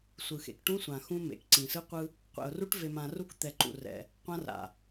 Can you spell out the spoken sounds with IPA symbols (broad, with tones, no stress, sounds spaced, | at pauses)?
sʷ ɯ˨ x ḛ˨ k ʈ ũ˦ sʷ ã˨ x ũ˦ m ḛ˨ k ǀ ĩ˨ s ɯ˦ qʷ ɯ˦ | qʷ ɛ̰˨ ʊ̯ r u˦ ʈ v e˨ m ã˨ r u˦ k t̪ ɛ˨ ǃ ṵ˨ r ɛ̰˨ | qʷ ã˦ r a̰˨